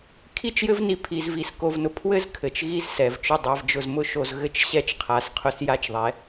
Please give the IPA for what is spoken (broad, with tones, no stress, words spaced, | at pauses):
kʰi˦t͡ʃjɘ˦vni˧ pʰi˧zvi˧s ko˧vnʊ˧ pʰwɘ˦z kʰɘ˨t͡ʃɣi˦zsɛ˨vt͡ʃʊ˦˨ dˤa˧vd͡ʒʊ˧zmʊ˦ʃo˧z ɣɘ˧t͡ʃɕɛ˧t͡ʃqʰa˨s qʰʊ˧s ja˦t͡ʃðˤɛ˨˦